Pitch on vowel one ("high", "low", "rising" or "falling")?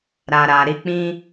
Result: low